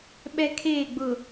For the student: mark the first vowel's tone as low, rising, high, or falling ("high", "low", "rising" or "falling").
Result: high